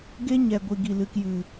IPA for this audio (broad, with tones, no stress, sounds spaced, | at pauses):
ɡ e˧ ɲ ɛ˨ ɡʷ i˨ ɡ i˨ l ɨ˨ k j ɨ˨